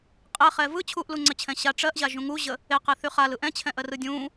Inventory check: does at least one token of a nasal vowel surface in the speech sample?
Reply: yes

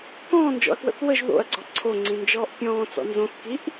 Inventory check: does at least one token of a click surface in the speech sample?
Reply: yes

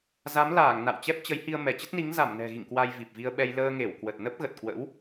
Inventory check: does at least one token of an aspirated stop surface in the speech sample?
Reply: no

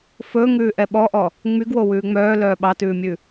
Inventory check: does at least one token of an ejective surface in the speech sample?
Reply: no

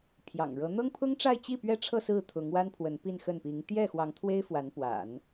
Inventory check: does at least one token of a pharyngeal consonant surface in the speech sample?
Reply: no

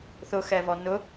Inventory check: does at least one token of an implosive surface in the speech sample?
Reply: no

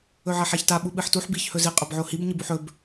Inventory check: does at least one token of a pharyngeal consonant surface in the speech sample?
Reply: yes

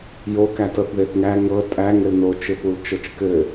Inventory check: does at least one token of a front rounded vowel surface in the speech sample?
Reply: no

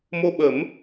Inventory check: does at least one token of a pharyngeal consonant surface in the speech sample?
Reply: no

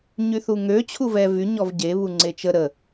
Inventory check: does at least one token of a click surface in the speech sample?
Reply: yes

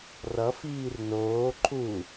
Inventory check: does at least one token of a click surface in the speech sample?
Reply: yes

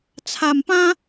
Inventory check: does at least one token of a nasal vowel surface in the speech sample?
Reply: yes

